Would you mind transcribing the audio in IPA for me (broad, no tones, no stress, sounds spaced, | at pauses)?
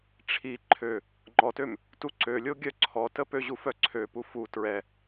ʈ͡ʂʰ i ǃʰ ø | ŋ͡ǃ ɔ t ø m | t u ǀ ø lʲ o ɡʲ œ ǀʰ ɔ t ə p ø ʑ u f œ ǀʰ ø p u f u t ɹ ɛ